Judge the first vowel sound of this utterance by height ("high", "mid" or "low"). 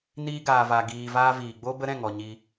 high